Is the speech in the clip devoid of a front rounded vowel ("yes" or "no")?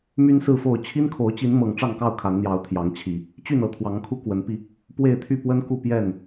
no